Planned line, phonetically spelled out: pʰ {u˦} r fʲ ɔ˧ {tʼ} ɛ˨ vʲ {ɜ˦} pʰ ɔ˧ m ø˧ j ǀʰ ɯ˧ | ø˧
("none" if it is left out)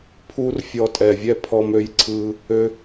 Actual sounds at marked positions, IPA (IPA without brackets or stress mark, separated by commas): u˦, tʼ, ɛ˦